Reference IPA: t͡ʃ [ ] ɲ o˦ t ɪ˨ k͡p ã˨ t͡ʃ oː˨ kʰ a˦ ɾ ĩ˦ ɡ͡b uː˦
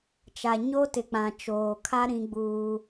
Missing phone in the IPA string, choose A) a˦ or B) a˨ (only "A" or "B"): B